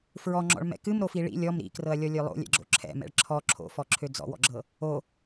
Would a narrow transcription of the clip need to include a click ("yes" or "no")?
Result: yes